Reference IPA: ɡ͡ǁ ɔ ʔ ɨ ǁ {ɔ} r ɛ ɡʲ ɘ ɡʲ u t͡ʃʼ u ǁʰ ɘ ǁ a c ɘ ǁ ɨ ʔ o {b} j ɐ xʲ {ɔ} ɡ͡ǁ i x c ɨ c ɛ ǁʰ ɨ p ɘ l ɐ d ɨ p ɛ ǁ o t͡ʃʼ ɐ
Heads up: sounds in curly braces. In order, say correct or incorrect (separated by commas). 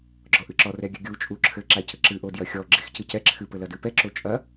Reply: correct, incorrect, correct